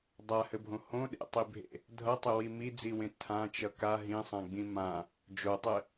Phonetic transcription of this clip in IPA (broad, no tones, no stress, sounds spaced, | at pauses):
dˤ a h ɘ bʱ õ h õ ɗ ḛ tˤ i bʱ ḛ | dʱ ʌ tˤ ɪ w i m i d͡z i w ẽ tʰ ã t͡ʃ ʌ k a ɦ ĩ sˤ ã ɡ͡b ĩ m ã | d͡ʒ o tˤ ɘ